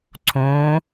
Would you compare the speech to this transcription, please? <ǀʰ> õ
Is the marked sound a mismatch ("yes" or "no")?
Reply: no